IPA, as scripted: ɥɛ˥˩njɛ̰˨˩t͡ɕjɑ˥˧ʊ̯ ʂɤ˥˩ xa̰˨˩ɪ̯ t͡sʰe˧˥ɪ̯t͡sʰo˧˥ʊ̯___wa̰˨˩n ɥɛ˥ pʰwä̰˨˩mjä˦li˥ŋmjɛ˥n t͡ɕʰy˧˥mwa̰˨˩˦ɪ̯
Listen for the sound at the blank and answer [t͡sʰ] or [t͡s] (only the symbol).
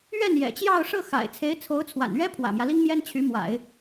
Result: t͡sʰ